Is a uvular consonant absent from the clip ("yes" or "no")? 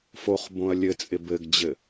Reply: no